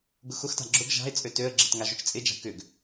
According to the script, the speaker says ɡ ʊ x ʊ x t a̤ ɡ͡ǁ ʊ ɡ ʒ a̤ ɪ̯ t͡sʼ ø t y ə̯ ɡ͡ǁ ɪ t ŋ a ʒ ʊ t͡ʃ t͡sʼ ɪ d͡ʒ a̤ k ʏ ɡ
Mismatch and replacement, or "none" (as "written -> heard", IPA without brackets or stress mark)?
y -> ø